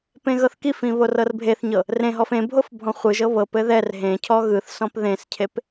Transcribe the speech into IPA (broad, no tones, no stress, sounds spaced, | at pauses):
p ẽ ɣ ɤ θ k i f ĩ β o r ɤ r bʱ e θ ɲ ɤ | r ẽ ɦ ɔ f ẽ bʱ o f bʱ ɔ̃ χʷ ɯ ʒ ɤ β ɤ p ɘ ð ɛ r ɦ ẽ cʰ ɔ ɣ ɯ θ s ɔ̃ p ð ẽ s cʰ e p